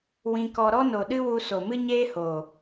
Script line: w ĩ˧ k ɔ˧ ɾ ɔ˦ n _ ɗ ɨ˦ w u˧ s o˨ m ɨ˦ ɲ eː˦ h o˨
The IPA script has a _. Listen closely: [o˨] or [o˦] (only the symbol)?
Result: o˨